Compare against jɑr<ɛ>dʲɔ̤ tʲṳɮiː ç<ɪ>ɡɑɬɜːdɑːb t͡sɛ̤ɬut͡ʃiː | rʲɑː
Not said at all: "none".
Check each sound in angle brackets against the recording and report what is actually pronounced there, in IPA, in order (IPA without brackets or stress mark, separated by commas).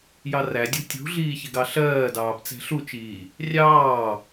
æ, ɪ